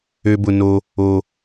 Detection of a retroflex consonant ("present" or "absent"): absent